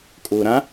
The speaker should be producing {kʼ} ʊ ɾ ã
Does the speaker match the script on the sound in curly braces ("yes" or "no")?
yes